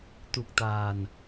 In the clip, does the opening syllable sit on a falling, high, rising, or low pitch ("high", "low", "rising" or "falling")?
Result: low